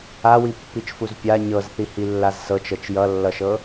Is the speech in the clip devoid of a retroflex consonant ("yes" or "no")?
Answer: yes